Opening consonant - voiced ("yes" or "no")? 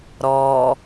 yes